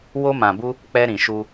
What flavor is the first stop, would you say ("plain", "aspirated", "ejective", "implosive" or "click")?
plain